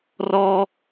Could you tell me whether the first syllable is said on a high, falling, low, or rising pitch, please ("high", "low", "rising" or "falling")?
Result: high